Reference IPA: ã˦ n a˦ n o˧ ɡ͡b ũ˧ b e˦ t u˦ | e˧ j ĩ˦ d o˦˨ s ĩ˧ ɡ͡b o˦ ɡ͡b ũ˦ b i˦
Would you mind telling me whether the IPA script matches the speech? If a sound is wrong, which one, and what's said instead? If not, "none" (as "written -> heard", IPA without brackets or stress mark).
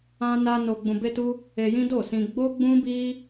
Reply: none